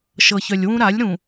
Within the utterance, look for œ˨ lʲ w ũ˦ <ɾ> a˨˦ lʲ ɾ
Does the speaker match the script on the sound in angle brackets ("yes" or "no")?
yes